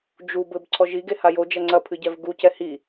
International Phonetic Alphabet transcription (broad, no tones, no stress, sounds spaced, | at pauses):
d͡ʒ u b ɘ b ǀʰ ɔ ʒ i ɡ e h a j o d͡ʒ ɐ ŋ͡ǀ ɐ pʰ ɨ ɟ ɛ v ɡ u c ɛ h i